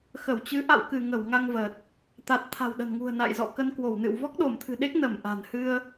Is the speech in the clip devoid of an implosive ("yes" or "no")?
no